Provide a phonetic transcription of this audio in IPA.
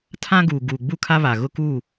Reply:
tʰ ã˦ ɡ uː˨ ɡ uː˨ ɡ͡b u˦˨ kʰ a˦ β a˨ ɣ ʊ˦ k uː˦˨

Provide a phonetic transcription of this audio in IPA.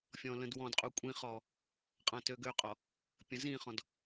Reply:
fʲ ɔ̃ l ə̃ d w ɔ̃ d qʼ u kʷʼ ĩ χ ɔ | qʼ ã t ø ɡ ø qʼ ɔ | pʲ ə̃ z ĩ χ ɔ̃ d

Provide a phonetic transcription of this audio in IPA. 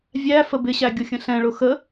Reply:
vʲ æ f ə b ɪ ɕ æ ɡʲ ʊ xʲ ə̃ ɬ ɛ̃ ɭ ʊ x ə

